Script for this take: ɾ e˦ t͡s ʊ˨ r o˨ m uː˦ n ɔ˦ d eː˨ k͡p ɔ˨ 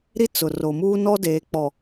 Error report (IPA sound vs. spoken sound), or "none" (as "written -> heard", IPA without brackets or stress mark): e˦ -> i˦